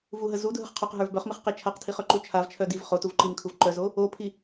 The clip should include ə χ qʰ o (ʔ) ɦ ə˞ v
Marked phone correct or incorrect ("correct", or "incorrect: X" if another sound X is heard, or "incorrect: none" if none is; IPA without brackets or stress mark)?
incorrect: q